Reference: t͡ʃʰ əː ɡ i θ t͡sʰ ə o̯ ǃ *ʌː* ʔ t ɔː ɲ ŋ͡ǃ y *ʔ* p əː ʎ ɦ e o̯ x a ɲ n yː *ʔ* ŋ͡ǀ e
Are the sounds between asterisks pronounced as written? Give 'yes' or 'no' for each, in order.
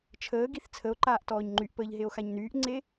no, yes, yes

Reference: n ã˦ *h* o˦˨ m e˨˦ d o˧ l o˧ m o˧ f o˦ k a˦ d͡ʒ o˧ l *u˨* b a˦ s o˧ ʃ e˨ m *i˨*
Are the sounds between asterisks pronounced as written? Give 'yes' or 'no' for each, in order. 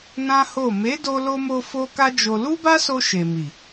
yes, no, yes

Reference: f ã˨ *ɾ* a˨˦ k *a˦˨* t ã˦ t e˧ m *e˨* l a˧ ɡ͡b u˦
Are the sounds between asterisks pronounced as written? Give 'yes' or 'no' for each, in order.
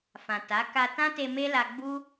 no, no, no

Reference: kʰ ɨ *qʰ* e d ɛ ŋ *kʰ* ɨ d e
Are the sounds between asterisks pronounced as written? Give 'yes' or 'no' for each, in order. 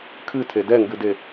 no, no

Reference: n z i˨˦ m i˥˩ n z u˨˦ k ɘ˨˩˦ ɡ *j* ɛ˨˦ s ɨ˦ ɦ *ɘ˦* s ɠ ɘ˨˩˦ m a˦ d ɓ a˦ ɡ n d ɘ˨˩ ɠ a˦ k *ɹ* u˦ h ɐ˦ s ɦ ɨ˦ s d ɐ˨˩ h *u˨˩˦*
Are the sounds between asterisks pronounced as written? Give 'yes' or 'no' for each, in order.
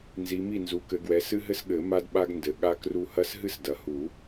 no, yes, no, yes

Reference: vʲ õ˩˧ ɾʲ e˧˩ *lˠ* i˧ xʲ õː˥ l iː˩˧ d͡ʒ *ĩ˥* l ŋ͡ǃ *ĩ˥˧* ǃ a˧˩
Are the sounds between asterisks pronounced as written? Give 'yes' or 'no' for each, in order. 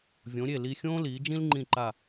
no, yes, no

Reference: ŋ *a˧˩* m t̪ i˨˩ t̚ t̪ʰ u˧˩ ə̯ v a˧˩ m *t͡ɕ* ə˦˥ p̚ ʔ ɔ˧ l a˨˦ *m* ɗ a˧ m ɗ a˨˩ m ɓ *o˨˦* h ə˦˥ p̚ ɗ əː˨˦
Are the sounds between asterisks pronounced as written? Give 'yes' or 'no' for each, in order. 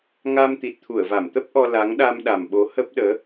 no, no, no, yes

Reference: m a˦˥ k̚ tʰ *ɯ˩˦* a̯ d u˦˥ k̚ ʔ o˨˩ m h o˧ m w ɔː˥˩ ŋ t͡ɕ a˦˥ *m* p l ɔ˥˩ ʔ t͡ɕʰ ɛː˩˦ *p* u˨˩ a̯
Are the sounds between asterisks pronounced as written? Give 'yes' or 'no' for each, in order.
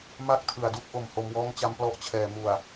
yes, yes, no

